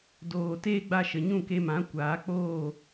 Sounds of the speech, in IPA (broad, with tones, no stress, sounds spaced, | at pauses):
d oː˨ t eː˦ ɡ͡b a˧ ʃ ə˨ ɲ ũ˦˨ k e˧ m ã˨˦ kʷ aː˨˦ k͡p oː˦˨